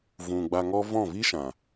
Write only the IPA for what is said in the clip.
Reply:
vũ˨ ɡ͡ba˧ŋɔ˦ vɔ̃˦˨vi˦ʃã˨

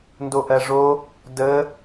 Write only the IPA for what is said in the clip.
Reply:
ndoʔɜʐo | də

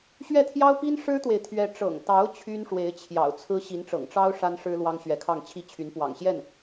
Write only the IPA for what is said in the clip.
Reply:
ɕɥɛ˥˩t̪ʰjɑ˥ʊ̯pi˥n ʂɻ̩˥t̪we˨ɪ̯t̪ʰɥɛ˧˥ ʈ͡ʂɤ̰˨˩ŋt̪ɑ˧˥ʊ̯ t͡ɕʰy˥nʂwe˧˥ɪ̯t͡ɕʰjɑ̰˨˩ʊ̯ t͡sʰɹ̩˥ ɕi˧˥nʈ͡ʂɤ̰˨˩ŋʈ͡ʂɑ˥ʊ̯ ʂa˥nʂɻ̩˥ lwɑ˥ŋɕɥɛ˧˥kʰɑ˥˩ŋ t͡ɕʰi˥t͡ɕʰy˧˥n pwɑ̰˨˩ŋɕjɛ˥˩n

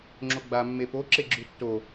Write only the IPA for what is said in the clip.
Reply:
ŋ͡ǁoɡ͡ba mːepo ǁeɡ͡ǁʉtːo

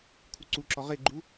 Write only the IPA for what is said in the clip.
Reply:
kʰuǀuǁɔ ʁeɡ͡ǃu

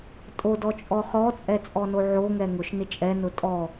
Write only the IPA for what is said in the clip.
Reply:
tʼo dɔt͡ʃʼɔχɔt͡sʼɛ t͡sʼɔnoʕoŋɛ ŋʊʃ nɪt͡ʃʼɛnʊ tʼɔ

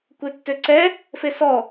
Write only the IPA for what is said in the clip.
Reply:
kʷetːøǀɛ | fesɔ

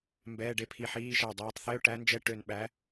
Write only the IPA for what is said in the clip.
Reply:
mbɛː˧˥˧ɖe˦˥pʰi˧˩ħiː˧˥˧ ʃæ˧˩dˤɛː˨˦tˤθe˧˥˧ʊ̯ ʈæ˦˥nd͡ʒɛ˧˥˧ʈø˧˩n ɓæ˨˦

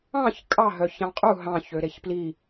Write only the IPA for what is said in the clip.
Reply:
ɑ̃ç kʼɑ ɦœçɑ̃qʼu ɦɑ̃ç øɾeçpli

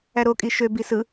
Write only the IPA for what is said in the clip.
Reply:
æɾo kʼiʃø bisɯ

